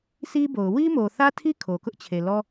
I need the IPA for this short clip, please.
si˦bo˨ʊ̯ wi˦mo˨θä˦tʰi˦ kʰo˨ kʊ˦ʔt͡ɕʰe˨lɔ˦

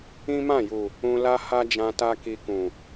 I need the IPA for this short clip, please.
ĩ˦mã˦˨ju˨ | ũ˧ la˦ha˦d͡ʒã˧ ta˦ki˧kũ˨

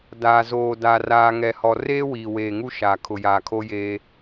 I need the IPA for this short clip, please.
daː˨zoː˨ da˨raː˨ ŋɛ˨hɔ˨ reː˦wiː˨weː˨ ŋu˦ʃaː˨ kʰʊ˨jaː˨kʰo˦jeː˦

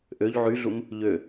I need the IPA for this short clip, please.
ʔøʎ ʕyɮum | ʎø

